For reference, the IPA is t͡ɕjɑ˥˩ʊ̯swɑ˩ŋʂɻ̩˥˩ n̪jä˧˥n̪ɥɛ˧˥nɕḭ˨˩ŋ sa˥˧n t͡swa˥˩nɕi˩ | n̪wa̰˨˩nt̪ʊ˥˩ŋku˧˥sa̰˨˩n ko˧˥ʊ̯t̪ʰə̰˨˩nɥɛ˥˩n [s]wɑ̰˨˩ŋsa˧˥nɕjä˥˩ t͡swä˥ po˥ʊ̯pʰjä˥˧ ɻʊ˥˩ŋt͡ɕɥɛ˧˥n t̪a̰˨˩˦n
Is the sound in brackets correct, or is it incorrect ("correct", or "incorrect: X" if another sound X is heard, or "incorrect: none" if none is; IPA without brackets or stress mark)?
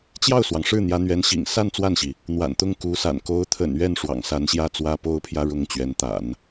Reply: incorrect: ʂ